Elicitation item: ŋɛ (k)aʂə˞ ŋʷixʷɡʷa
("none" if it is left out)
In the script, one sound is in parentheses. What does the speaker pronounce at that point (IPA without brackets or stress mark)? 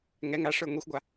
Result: ŋ